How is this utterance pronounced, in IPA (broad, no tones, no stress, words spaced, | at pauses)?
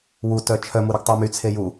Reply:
wutœ t͡ʃʰœmuɾøɡ tˤumyt͡sʰe ju